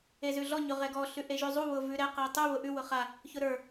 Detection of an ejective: absent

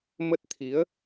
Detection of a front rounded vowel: absent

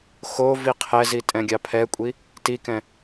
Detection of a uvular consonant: present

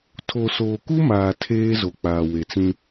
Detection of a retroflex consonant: absent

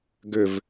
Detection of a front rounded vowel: present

